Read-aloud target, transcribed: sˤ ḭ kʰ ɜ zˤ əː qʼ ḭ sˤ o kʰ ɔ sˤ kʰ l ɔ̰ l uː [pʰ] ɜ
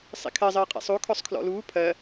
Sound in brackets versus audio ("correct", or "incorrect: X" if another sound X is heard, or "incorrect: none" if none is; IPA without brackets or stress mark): correct